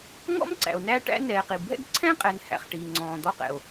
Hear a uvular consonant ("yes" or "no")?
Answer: yes